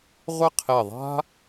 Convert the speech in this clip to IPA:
ʁʷ ɪ˥˧ qʰ e˧˩ ðˤ a̤˥

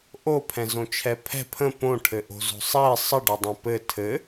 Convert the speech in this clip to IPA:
ʔ o pʰ ɛ̃ z õ t͡ʃʰ ɛ pʰ ɛ̤ pʰ ə̃ p õ ʈʰ ɘ ʔ o̤ z o̤ sˤ ɛ sˤ ə ɖ o dˤ ɛ̃ p ɘ tʰ ɘ

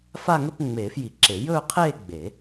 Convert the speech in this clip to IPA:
f a˥˧ ŋ ɵ˥˧ p ŋ͡m eː˨˩˦ f j i˨˩˦ ǁ e˨˩˦ j ɵː˥˧ qʰ eː˥˧ ɡ͡b e˨˩˦

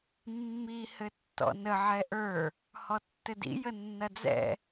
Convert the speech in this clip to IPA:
mː i h ɘ tː ɔ̰ n ə ʕ ɛ ʔ ə˞ | h ɔ tː ɘ d ḭ j ə nː ɐ d͡z ɛ̰

